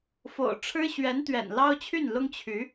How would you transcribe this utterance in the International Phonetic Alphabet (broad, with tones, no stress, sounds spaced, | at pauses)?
f o̰˨˩ ʊ̯ ʈ͡ʂʰ ɻ̩˥ ɕ ɥ ɛ˧˥ n t̪ ɥ ɛ̰˨˩ n l ɑ˥ ʊ̯ t͡ɕʰ y˥˩ n l ʊ˥ ŋ t͡ɕʰ y˧˥